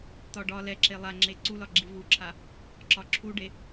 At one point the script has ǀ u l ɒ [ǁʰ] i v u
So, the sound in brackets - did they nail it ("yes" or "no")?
no